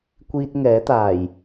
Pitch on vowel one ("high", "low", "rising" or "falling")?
high